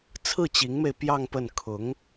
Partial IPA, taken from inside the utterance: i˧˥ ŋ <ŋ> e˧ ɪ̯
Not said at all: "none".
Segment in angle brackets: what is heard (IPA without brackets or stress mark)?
m